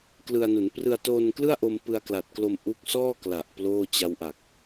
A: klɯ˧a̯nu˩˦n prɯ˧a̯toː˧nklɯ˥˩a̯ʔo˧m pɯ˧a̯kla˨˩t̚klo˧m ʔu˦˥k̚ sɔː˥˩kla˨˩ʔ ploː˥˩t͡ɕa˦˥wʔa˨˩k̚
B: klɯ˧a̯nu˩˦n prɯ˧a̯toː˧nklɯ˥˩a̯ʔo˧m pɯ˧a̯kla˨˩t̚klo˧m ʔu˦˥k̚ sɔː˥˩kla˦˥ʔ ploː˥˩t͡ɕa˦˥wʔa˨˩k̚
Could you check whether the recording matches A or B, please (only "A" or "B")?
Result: A